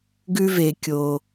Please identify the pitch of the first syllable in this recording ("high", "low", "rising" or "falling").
high